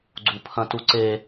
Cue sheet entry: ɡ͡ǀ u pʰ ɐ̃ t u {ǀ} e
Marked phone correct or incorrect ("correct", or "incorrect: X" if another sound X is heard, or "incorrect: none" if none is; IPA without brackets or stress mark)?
correct